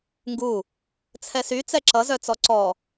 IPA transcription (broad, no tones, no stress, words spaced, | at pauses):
ŋɡu | t͡sʰɛsy t͡sɛǁʌ zœt͡sɔǀɔ